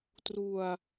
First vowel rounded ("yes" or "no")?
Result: yes